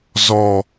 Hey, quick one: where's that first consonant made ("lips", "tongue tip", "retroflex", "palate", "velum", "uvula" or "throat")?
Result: tongue tip